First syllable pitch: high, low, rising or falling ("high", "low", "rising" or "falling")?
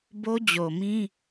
high